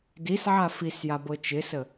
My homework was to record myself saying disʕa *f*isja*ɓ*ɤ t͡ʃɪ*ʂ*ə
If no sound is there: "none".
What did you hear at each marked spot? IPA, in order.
f, b, s

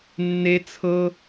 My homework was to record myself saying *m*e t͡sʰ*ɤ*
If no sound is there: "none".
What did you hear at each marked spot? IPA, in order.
nː, ɤ

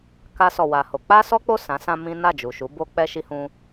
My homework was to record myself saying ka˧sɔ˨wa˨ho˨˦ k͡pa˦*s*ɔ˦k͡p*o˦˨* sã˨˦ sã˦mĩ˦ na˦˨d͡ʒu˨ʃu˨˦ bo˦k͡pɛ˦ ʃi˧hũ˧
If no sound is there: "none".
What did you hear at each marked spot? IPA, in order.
s, o˦˨

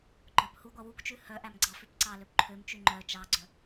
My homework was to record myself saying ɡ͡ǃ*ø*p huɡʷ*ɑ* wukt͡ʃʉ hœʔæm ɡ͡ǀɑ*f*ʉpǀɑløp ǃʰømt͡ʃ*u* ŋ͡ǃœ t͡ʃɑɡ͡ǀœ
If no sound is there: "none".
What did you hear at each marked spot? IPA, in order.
œ, ɑ, f, ʉ

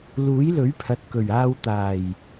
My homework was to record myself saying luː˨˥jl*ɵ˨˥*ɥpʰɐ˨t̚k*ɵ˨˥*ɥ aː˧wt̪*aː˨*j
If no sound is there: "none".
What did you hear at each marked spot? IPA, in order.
ɵ˨˥, ɵ˨˩, aː˨˩

